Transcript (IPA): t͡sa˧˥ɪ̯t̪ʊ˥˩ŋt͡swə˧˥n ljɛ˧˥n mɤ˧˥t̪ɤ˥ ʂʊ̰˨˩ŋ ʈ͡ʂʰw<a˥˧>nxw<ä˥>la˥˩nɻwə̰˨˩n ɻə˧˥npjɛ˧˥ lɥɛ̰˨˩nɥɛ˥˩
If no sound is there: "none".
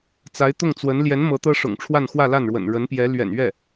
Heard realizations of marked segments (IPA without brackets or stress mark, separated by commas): a˥˧, ä˥˧